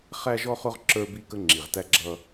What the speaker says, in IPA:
χ æ˦ ʒ ɔ˦ χ ʊ˦ ʁ ǁ ə˞˦ b i˦ k ə˦ ŋ͡ǁ i˨ ʁ t æ˦ ɡ͡ǁ ʌ˦

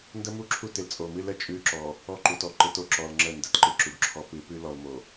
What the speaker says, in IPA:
n d ə˦ m u˦˨ ǁʰ u˦ t ɪ˨ l t͡sʼ o˨ m ɨ˦ l ə˨ t͡ʃʼ ʉ˦ ǁ ɔ˨ | ɔ˦ ǃ u˨ t ɔ˦ ǃ ɪ˨˦ t o˨ ǁ ɔ˨ l ŋ͡ǁ ə˦˨ n d ə˨ t ǃ ɨ˦˨ ǁ u˨ ɡ ǁʰ ɔ˦ p ɨ˨˦ p ʉ˦ l ɔ˨ l m o˨

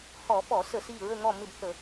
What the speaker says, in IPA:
h ɔ˧˩˧ f ɔ˧˩˧ s ə˧˩˧ s i˦˨ ɹ ə˦˨ ŋ ɔ˦˨ m ɪ˦˨ b θ ə˧˩˧

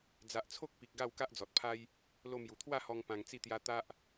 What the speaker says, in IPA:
d͡z a˨ ʔ t͡sʰ o˦ k̚ p i˨ k̚ ɡ a˥˧ w k a˦ ʔ d͡z ɔ˨ t̚ pʰ a˦ j | l o˧ m j u˨˩ t̪ʰ w a˥˧ h ɔ˧ ŋ p ã˧ ŋ t͡s i˥˧ t̪ j a˦ t̪ a˦ ʔ

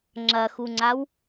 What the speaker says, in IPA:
ŋ͡ǁ ɐ x u ŋ͡ǀ a w

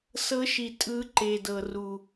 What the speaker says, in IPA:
s ɤ˨˦ ʃ i˨˩ tʼ ɯ˨˦ ǃ e˨˩ d ɤ˨˩ r u˨˩

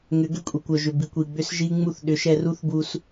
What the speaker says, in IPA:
ŋ ʏ˨˦ ɡ ʏ˦ kʷʼ i˨ kʷ œ˨ ʒ ʏ˨ b i˨ kʷ i˨ ɡ͡b ʏ˦ s ʒ i˦ ŋ͡m u˧ θ ɗ ʏ˨˦ ʃ ɛ˧ r u˦ θ b u˧ s

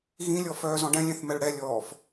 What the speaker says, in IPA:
ɣ ĩ lʲ ɔ f œː z ɔ̃ ɖ ɛ̃ lʲ ɛ̃ θ m ɛ ɭ ɽ ɛ lʲ ɔː f

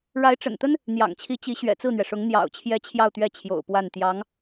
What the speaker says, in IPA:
ɻ a˧˥ ɪ̯ ʈ͡ʂ ə̰˨˩ n t̪ ə˥ n | n̪ j ɑ̰˨˩ ŋ t͡ɕʰ i˧˥ t͡ɕ i˧˥ ɕ ɥ ɛ̰˨˩ t͡s ɹ̩˥˩ n̪ ɥ ɛ˩ ʂ ʊ˧˥ ŋ n̪ j ɑ̰˨˩ ʊ̯ t͡ɕʰ j ɛ˧˥ t͡ɕʰ j ɑ˥˧ ʊ̯ t̪ ɥ ɛ˥˩ t͡ɕʰ j o̰˨˩ ʊ̯ p w a˥˩ n t̪ j ɑ˧˥ ŋ

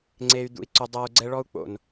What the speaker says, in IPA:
ŋ͡ǀ e˧ y̯ d̪ ṵ˧ i̯ ǀ u˧ dˤ ɤː˦ u̯ ɡ͡ǀ ɛ˦ ɭ ɔ˦ u̯ k͡p o̰˨ n

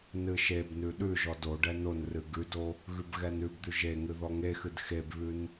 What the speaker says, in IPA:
n ɨ ʃ e b n ʉ ɗ ʉ ʒ ɔ d o ɖ ɛ n o n r ɨ ɡ ʉ d o | ɣ ʉ b ɣ ɛ n ʉ b d̪ ʉ ʒ e ŋ ɨ ð ɔ ŋ e x ɨ d x e b β ʉ n

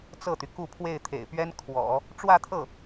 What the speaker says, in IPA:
t͡s ɤ˥˩ t̪ y˩ k u˥˧ pʰ w e˥˩ ɪ̯ t̪ʰ ḛ˨˩ ɪ̯ p ɥ ɛ˥ n kʰ w ɔ̰˨˩˦ | ʈ͡ʂ w ä˥˧ t̪ʰ ɤ˥˩

